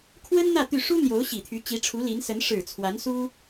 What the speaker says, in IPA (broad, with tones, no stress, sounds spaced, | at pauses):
kʰ w ə˥ n n̪ ä˥˧ t̪ y˥˩ ʂ u˥ n̪ j o˧˥ ʊ̯ ɕ i˨˩ t̪ʰ y˧˥ t͡ɕ i˧˥ ʈ͡ʂʰ u˧˥ l i˧˥ n s ə˧˥ n ʂ ɻ̩˨˩ t͡sʰ w a˧˥ n s u˥